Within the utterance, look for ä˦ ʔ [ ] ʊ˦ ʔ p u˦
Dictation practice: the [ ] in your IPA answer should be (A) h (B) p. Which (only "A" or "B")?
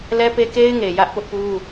B